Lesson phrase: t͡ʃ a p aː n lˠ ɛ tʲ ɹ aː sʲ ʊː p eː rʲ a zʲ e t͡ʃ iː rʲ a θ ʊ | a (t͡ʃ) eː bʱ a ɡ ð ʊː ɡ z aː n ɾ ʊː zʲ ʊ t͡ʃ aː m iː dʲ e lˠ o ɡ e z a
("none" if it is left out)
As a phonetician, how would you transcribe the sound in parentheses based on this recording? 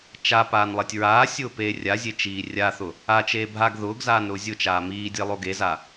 t͡ʃ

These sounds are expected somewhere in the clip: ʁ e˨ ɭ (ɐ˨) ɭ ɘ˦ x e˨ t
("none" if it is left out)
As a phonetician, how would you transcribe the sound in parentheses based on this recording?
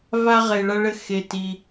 ɐ˦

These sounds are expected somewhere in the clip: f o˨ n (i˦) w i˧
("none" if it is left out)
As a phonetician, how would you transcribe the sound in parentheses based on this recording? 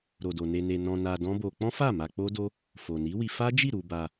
i˨˦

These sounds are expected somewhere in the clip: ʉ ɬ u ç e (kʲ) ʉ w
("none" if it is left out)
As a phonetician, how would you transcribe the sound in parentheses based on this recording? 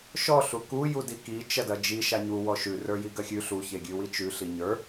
ɡʲ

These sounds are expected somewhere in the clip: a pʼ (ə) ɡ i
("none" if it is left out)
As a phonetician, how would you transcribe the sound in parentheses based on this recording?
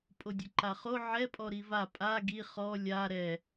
a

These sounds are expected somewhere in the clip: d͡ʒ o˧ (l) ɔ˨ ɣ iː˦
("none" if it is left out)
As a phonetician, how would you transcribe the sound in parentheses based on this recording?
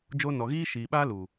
n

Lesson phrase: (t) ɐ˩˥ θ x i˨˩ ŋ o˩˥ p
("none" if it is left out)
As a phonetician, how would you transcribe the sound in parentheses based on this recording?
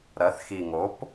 ɾ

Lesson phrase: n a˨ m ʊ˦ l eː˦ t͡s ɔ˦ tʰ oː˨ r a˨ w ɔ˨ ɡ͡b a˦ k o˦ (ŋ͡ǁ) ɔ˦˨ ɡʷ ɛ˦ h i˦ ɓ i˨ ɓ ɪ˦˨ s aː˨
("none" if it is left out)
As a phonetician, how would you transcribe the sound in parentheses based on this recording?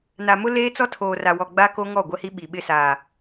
ŋ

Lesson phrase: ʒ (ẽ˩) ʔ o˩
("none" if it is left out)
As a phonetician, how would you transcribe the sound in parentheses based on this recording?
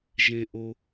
ẽ˩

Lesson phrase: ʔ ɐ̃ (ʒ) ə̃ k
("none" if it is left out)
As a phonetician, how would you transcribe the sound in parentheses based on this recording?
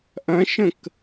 ʃ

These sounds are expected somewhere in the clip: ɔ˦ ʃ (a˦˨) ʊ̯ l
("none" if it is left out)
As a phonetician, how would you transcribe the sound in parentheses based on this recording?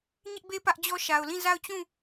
a˨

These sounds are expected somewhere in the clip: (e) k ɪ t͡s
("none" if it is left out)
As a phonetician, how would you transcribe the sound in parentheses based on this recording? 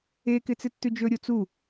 e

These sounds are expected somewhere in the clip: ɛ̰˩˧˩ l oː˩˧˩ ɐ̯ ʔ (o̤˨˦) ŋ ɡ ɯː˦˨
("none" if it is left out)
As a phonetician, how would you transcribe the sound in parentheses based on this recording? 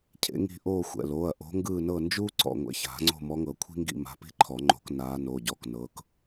o̤˨˦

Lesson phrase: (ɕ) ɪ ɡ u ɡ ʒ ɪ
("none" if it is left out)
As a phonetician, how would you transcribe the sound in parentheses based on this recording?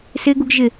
s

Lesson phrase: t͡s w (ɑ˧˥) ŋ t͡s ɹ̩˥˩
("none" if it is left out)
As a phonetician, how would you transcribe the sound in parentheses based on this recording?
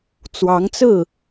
ɑ˧˥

